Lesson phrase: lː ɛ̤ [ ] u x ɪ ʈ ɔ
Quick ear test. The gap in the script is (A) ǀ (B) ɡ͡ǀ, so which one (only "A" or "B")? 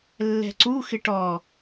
A